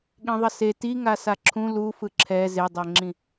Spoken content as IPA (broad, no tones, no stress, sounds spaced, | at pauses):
ɠ ĩ ðˤ ʌ s e t i ŋ a s a ǁʰ ũ l u f ɯ ǁʰ ɛ z e dˤ ɛ ŋ͡ǁ ĩ